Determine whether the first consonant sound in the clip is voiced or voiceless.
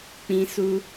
voiceless